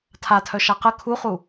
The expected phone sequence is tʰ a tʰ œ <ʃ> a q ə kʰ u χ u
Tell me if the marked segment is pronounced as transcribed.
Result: yes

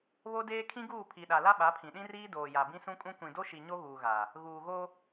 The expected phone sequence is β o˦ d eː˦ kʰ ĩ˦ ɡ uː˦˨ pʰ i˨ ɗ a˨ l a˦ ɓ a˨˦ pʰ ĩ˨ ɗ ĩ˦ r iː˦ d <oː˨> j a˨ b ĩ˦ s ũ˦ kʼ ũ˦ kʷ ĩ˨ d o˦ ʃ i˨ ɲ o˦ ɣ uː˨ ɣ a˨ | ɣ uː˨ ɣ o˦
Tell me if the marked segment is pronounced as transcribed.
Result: yes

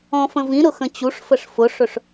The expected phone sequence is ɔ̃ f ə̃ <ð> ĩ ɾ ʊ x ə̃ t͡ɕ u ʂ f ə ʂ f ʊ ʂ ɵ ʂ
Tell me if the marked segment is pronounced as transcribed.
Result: no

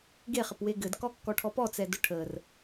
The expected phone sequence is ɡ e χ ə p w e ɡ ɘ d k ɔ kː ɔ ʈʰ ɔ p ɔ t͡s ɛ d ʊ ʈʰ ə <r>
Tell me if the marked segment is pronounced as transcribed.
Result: yes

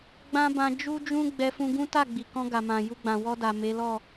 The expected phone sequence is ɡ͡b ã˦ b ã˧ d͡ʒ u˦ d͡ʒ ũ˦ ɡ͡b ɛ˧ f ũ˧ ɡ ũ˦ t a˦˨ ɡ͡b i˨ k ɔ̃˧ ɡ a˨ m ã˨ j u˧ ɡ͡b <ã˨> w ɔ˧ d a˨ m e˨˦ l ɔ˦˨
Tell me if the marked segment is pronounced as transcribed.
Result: yes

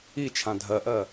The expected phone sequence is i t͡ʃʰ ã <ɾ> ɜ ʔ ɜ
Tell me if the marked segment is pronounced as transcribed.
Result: no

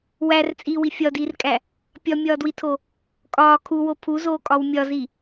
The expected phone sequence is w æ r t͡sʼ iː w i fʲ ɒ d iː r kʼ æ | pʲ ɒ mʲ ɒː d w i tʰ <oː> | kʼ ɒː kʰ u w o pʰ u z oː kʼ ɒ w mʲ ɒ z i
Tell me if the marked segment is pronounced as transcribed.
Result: no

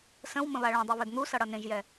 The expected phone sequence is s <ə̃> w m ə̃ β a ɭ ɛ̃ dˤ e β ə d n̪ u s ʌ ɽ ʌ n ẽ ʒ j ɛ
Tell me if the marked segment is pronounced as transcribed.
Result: yes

